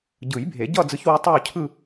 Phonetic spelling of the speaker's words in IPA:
ɟ ɯ˨˩˦ j bʱ e˨˩˦ ɟ ʌ˥˧ d͡z ɯ˧˥ ç w u˧˥ tˤ o˥˧ cʰ ɯ˥˧

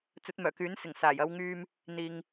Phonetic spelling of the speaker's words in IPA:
t͡s ɵ˨˥ t̚ m œː˨˩ k yː˨˥ n s ɪ˨˩ ŋ s aː˨˩ j ɐ˨˧ w ŋ yː˧ m | n̪ iː˨ ŋ

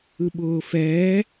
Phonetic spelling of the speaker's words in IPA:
ɯ ɓ ʊː f ɛː

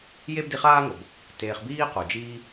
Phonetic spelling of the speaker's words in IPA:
j e˦ b d i˧ χ aː˦ ŋ o˨ b | t eː˧ χ b iː˦ q u˨ d͡ʒ iː˦

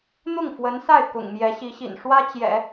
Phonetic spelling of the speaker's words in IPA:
n̪ ʊ˥˩ ŋ f w ə˧˥ n s a˥˩ ɪ̯ k ʊ̰˨˩ ŋ m j ɛ˧˥ ɕ i˧˥ ɕ ḭ˨˩ n ʂ w ä˥ t͡ɕ j ɛ̰˨˩˦

